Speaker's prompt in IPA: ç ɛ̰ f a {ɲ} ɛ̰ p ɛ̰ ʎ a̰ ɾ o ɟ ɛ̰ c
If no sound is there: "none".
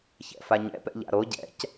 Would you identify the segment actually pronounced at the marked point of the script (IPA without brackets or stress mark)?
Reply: ɲ